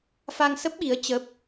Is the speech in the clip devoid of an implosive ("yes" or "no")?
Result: no